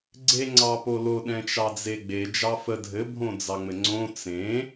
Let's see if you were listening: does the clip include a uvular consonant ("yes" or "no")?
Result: no